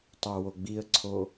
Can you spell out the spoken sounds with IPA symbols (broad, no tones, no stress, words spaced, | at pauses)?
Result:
tˤawoɡ͡biə̯ǀʰo